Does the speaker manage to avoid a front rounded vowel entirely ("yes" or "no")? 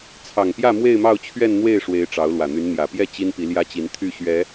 no